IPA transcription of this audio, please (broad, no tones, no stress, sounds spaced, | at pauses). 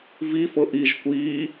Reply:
v i f ɤ ʔ i ʒ kʷ iː